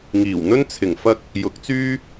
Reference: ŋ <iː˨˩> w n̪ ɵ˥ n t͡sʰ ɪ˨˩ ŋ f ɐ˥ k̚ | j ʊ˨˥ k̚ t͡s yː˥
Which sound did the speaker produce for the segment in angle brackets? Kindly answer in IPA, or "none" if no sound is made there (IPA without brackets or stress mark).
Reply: iː˨˩